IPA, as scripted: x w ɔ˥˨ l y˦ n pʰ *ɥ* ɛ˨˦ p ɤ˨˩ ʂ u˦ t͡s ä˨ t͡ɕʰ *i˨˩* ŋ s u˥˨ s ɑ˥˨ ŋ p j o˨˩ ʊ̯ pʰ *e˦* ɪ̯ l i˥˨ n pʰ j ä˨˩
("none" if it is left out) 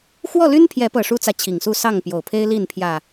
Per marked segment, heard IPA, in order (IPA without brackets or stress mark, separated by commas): j, i˨˩, e˦